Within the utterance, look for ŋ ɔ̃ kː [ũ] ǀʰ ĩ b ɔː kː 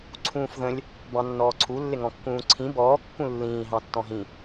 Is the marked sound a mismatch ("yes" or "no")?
yes